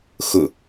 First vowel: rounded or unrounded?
rounded